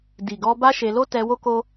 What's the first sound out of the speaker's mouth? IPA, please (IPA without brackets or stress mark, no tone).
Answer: d